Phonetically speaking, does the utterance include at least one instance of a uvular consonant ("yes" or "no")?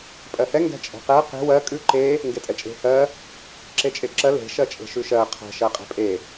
yes